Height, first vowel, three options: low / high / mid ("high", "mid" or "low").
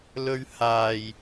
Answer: mid